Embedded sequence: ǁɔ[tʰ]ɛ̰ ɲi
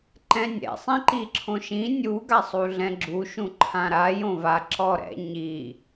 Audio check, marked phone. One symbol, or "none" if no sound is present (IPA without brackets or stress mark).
ɾ